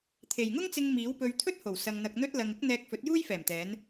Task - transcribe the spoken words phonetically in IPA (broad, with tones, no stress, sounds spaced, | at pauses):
t̪ʰ e˨ j ŋ ʊ˥ ŋ t͡s ɪ˧ ŋ m iː˨˥ w p ɵ˧ ɥ t̪ʰ ɵ˥ t̚ h o˨˩ w s ɐ˧ ŋ n̪ ɐ˧ k̚ n̪ ɵ˥ t̚ l ɐ˧ ŋ ɪ˥ k̚ n̪ ɛː˧ k̚ f ɵ˨˥ t̚ j uː˥ j f ɛː˨˩ m t̪ ɛː˨˧ n